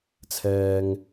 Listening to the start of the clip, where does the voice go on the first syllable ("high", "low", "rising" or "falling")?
low